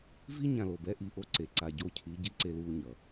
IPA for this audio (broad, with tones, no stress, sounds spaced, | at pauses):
v i˦ ɲ ã˨ l o˨ b ɛ˦ ʔ i˨ ʔ o˦ ǀ e˨ ǀ a˨ ɟ o˦˨ cʰ i˨˦ ɟ i˦ ǀ e˦ l uː˦ ɲ ʌ˨